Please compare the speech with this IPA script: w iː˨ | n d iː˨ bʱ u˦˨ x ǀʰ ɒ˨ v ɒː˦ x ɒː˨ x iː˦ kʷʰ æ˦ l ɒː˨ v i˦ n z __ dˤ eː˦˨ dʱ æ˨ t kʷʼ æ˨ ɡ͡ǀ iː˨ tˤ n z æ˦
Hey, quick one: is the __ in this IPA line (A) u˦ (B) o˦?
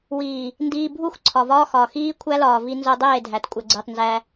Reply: B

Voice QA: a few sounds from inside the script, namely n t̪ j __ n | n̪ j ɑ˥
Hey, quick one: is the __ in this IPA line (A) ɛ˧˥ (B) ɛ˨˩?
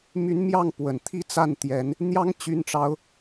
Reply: A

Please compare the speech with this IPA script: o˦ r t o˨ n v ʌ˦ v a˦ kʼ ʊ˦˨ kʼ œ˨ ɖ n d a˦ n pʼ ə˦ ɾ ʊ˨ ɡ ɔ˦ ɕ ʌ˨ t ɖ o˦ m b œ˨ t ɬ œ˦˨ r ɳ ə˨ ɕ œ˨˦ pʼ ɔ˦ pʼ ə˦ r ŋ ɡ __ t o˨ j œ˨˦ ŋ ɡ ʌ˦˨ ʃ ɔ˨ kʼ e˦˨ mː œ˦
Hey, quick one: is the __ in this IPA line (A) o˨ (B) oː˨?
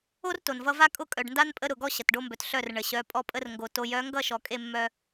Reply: A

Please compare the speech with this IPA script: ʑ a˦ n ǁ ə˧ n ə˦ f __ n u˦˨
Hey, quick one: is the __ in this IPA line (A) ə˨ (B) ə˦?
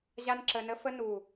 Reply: B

